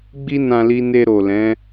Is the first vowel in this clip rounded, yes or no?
no